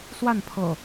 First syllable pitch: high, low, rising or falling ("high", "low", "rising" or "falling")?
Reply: falling